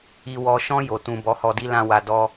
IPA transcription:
i˨ w ɔ˨ ʃ ɔ̃˧ j o˨ t ũ˨ b ɔ˨˦ h ɔ˧ d i˦ l ã˦ w a˧ d ɔ˦

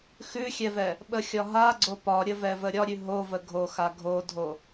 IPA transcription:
x ʉ xʲ ɛ v ɛ | ɓ ə xʲ ɒ ɦ a ɡ͡ǀ o p ɒ ɾʲ ə v ɛ v ə ɾʲ ɒ ɾʲ ʉ ɦ o v ə ɡʱ o x a ɡʱ o dʱ o

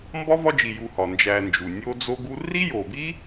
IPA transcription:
m b ɒ˥ v ɒ˦ d͡ʒ i˨ j u˨ h ɒ˩ n d͡ʒ æ˨ n d͡ʒ u˩ nʲ o˥ d͡z o˥ ɡ u˥ r i˥ j o˨ b i˥

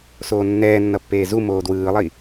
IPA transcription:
s oː nː ɛː nː ʌ pː eː z u m oː d w ɯː lˠ i

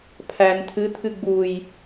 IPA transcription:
pʰ æ n tʰ ɨ t̪ʰ ɨ ɡ͡b u j

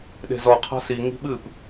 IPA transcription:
ɗ e̤ z ɔ qʰ a̤ s i ŋ i̤ ɓ ɨ p

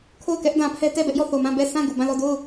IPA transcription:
kʰ o˦˨ ʊ̯ k ɛ˦ ʔ d ã˨ pʰ ɛ˦ t ɛ˦˨ b ɛ˦ ʔ j ɔ˦˨ θ o˨ m ã˦˨ b ɛ˦˨ sʰ ã˦˨ ɡ u˨ b ã˦˨ l ɔ˦˨ d o˦˨ ʊ̯

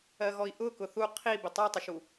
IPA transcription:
ɜ ɣ ɔ i̯ ʔ ʊ k ʊ θ u qʰ i b ɪ tˤ u tˤ ʊ ʃ u

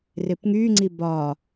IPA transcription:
r ɪ p ŋ y ŋ͡ǀ i b ɒ

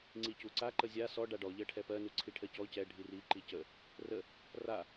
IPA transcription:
ŋ͡ǀ i c u ǀ a ǃ ə zʲ a s ɔ ɖ a ɖ ɔ ʎ ɜ ʈʰ ɛ p ɜ n u ǀʰ i ʈʰ ɜ c ɔ c ɛ ɖʱ i r i ǃ i c ə | r ə | r a

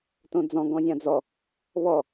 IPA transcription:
t õ d͡z ɔ̃ ɡ ɔ̃ zʲ ã d͡z ɔ | β ɔ

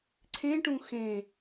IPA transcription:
ǀʰ ẽ ʈ ũ x ẽ

